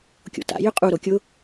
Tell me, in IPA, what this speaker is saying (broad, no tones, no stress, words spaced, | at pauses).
kʲo̰ta̰ jʏqʼu ɾokʲʊ